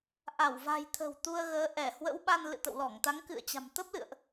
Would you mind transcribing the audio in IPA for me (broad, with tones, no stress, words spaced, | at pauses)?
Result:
ʔa˧˩wva̤˨˩jt̪ʰə̤˨˩w t̪u˧ə̯ɣəː˨˦ ʔɛ˧˩hwə̰˧˥w ɓa˧nlɨ̰˧˨t̪ə̰˧˨wlɔ˧˩ŋ t̪a˨˦ŋkɨ̰˧˨ə̯t͡ɕa̤˨˩m t̪ə˦˥p̚lɨ̰˧˨ə̯ʔ